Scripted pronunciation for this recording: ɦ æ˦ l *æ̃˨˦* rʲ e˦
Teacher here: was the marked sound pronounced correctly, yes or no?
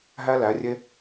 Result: no